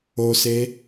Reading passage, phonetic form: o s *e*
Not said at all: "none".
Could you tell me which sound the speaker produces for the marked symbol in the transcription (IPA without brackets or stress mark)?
e